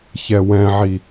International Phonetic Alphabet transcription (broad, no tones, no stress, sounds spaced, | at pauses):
ç ɛ w ɛ̃ ʕ i